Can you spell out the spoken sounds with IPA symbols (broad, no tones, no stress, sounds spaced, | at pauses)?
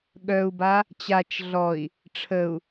ɠ œ u̯ b a | t͡ɕ a t͡ʃ ɮ ɔ i̯ | ʈ͡ʂʰ ə u̯